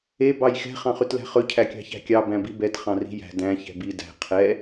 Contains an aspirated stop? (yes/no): yes